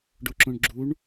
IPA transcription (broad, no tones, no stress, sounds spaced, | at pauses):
ɖ o ǁ õ ɳ ɡ͡ǁ u ɳ